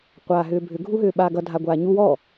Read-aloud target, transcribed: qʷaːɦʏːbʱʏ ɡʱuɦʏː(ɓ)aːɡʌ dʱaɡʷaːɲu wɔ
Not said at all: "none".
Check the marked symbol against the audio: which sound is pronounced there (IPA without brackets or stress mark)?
ɓ